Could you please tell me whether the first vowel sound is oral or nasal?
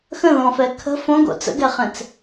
nasal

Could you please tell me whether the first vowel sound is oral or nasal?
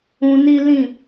nasal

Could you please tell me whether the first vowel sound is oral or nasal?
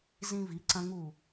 nasal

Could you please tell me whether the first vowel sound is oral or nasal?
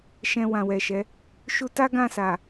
nasal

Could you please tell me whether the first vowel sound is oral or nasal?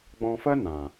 nasal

